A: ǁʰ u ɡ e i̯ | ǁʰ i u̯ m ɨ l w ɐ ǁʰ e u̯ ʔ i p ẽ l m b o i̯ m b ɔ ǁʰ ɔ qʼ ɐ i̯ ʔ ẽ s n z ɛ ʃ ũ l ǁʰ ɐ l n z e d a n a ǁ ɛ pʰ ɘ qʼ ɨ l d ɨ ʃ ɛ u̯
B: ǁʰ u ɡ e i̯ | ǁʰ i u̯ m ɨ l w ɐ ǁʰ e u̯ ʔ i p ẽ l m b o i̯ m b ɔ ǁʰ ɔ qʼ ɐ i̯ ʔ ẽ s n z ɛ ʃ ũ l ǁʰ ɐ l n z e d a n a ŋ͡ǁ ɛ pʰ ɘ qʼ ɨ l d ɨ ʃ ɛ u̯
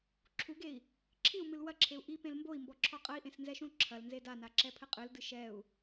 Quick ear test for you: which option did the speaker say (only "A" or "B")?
A